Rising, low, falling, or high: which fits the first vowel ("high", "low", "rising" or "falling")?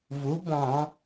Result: rising